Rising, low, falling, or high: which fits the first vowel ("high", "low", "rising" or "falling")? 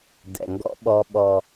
low